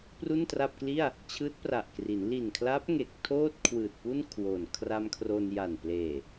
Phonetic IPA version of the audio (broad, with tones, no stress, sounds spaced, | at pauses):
p r u˥˩ n t r a˥˩ p̚ k l i˥˩ a̯ | t͡ɕʰ ɯː˦˥ t̚ p r a˨˩ ʔ k r i˩˦ n l i˨˩ n kʰ l a˦˥ p̚ ŋ e˨˩ k̚ tʰ oː˥˩ t̚ kʰ w ɯː˨˩ t̚ p u˥˩ n kʰ w o˨˩ n kʰ r a˧ m kʰ r o˧ n j a˨˩ n p l eː˨˩